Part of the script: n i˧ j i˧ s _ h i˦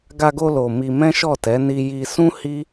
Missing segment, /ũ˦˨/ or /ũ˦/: ũ˦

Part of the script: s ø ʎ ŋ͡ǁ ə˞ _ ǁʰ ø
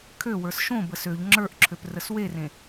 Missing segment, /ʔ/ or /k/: ʔ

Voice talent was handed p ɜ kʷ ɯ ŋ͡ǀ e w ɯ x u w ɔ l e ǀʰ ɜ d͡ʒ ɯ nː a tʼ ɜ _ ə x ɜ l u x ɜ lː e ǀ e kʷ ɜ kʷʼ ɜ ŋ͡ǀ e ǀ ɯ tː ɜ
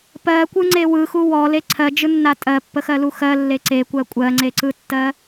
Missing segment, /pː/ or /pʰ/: pː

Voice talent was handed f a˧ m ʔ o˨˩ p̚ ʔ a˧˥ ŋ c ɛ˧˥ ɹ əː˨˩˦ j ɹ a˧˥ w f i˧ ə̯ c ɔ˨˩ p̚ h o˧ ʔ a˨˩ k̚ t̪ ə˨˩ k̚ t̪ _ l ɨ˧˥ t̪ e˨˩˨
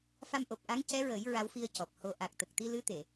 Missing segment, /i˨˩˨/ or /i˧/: i˧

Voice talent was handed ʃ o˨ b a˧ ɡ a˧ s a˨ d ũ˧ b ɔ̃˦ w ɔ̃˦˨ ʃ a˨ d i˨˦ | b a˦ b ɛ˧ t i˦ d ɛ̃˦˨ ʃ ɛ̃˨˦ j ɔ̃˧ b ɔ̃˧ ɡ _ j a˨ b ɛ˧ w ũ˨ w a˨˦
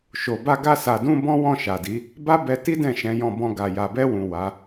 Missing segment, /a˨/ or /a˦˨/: a˨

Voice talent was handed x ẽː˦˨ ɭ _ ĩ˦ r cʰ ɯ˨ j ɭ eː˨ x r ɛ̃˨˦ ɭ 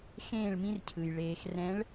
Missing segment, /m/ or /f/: m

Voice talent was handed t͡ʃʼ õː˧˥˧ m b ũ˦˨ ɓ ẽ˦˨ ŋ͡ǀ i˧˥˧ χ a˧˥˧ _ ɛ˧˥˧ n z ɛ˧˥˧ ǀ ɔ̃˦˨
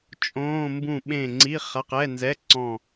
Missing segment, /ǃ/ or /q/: q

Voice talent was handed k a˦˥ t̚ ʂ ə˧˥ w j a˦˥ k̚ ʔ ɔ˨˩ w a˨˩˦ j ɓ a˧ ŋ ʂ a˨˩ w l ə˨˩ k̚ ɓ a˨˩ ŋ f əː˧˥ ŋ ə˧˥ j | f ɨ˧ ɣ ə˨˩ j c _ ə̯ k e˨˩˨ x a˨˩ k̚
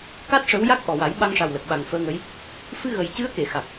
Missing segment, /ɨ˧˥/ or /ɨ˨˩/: ɨ˧˥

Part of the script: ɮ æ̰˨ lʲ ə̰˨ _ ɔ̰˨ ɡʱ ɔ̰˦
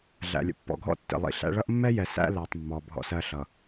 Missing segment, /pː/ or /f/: pː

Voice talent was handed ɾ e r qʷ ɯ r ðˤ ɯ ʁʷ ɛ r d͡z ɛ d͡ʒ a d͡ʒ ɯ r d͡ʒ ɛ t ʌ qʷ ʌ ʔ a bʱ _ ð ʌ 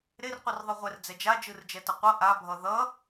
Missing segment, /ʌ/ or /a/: ʌ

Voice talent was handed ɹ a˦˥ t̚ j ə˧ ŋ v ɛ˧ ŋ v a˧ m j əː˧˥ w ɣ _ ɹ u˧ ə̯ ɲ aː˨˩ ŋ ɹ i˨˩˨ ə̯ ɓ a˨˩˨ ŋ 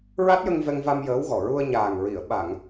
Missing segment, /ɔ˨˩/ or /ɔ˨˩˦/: ɔ˨˩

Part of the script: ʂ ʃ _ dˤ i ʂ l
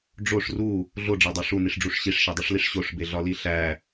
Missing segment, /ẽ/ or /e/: e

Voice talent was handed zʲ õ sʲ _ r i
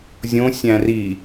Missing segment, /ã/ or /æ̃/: æ̃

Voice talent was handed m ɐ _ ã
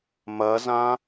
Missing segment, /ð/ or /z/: z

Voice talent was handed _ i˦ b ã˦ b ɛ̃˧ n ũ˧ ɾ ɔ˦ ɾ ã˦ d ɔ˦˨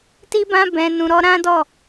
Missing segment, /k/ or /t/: t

